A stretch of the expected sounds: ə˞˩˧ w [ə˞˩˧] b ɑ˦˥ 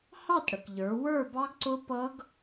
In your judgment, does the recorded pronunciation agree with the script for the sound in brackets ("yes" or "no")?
no